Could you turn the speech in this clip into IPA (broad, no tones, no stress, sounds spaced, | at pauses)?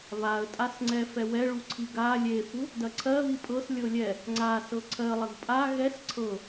β a ə̯ tʼ a s ŋ͡ǀ ɛ f ɛ w ɛ ɭ u ǀʰ i ɡ a lʲ e f u | d ɐ ǀʰ ɜ β i pʼ ɤ s lʲ ɤ lʲ ɛ | ŋ͡ǀ a s ɤ ǀʰ ɜ lˠ ɐ ɡ pʼ a ɣ ɛ s ǀʰ ɤ